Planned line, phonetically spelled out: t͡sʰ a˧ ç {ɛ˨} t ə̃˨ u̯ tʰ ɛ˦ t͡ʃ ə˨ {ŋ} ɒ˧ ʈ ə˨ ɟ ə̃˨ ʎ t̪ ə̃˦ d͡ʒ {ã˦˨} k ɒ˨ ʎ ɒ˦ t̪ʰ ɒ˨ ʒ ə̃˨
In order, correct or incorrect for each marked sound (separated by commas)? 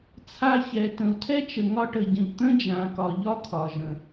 correct, correct, incorrect